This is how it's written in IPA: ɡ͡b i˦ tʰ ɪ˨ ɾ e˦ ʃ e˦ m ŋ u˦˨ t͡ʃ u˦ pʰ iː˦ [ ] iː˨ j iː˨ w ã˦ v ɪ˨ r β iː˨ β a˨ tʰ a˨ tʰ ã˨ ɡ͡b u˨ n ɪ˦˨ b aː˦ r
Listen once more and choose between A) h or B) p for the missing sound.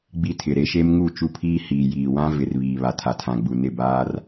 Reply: A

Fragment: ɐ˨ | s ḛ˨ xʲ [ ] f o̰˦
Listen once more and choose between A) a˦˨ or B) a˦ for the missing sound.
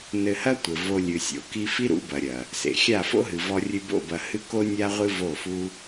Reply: A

